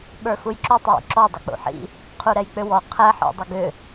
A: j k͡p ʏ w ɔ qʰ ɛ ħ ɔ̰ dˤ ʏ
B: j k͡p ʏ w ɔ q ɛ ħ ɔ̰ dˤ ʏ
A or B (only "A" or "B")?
A